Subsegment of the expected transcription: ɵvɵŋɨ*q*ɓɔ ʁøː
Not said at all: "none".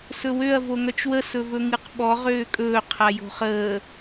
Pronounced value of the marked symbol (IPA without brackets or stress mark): q